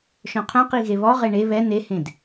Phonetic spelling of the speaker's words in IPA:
ʃ œ̃ qʰ œ̃ q i ɣ e β ɔ ʁ e ɳ e β ɛ n e h ẽ d

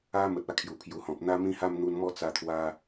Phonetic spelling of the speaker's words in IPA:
a˦ m ə˨ t̚ a˥˧ kʰ j u˨˩ pʰ j u˨˩ h ɔ̃˨ p̚ n̪ a˦ m ĩ˦ h a˥˧ m n̪ u˧ n m ɔ˥˧ t͡s a˧ t̪ʰ w a˧

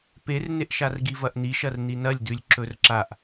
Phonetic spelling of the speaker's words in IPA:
p e r n e ʔ ʃ a r ɡ i v ɐ ʔ n̪ i ʃ ɐ r n̪ i n ɐ lʲ d ʉ lʲ ǁ ɵ r ǁ a ʔ

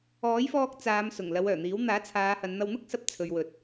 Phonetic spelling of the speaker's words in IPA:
ɔː˨˥ j f ɔː˧ k̚ t͡s aː˨˧ m s ʊ˨˩ ŋ l ɐ˨˧ w œː˨˩ n̪ iː˨˥ w n̪ aː˨˥ t͡sʰ aː˨˧ h ɐ˨˧ n n̪ ɐ˧ w n̪ ʊ˥ k̚ s ɐ˨˥ p̚ t͡sʰ ɵ˨ ɥ w ɵ˨ t̚

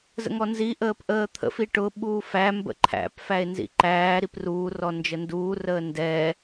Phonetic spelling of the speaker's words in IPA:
z ə̰ ŋ ɔ n z i ʔ əː p ʔ əː t̪ʰ ə̰ f i ʈ ʊ ɓ uː f æ m b ə̰ ǃʰ æ̰ p f æ e̯ n z ḭ ǃ æː ɾ i p r uː r ɔ n d͡ʒ ə n d uː r əː n d ɛ

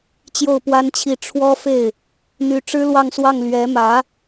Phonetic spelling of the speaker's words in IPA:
t͡ɕ j o˥˩ ʊ̯ p w a˥ n t͡ɕʰ i˥˩ ʈ͡ʂʰ w ɔ˥ f e˥˩ ɪ̯ | n̪ y˧˥ ʈ͡ʂ ɻ̩˥ l w ɑ˥˧ ŋ s w ɑ˥˩ ŋ l ɥ ɛ˧˥ m ä˧˥

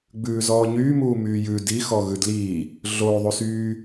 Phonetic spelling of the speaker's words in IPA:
ɡ͡b ʉː z ɔː ɲ yː m uː m yː j ʉ d i x ɔ ɣ ʉ d l iː | ɮ o ðˤ u s yː

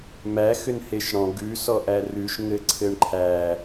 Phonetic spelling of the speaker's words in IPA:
m æ x ʏ n h e ʃ ɽ ɔ̃ ɡ ʉ s ɔ ʔ æ r ʉ ʃ ŋ ɘ ǀʰ ɘ ɳ ǃʰ æ

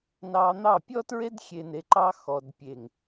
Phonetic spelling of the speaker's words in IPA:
n ɑ˧ n̪ ɑ˦˨ pʲ ɔ˦ t ɹ e˦ d xʲ e˧ n e˧ ǃ ɑ˦ x ɔ˨ d pʲ e˨ ŋ

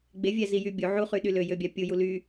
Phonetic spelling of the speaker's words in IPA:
ɡ͡b e vʲ æ z i j y bʲ u ʕ u χ y ɗ y l ø j ø bʲ ɑ pʲ u j u l y

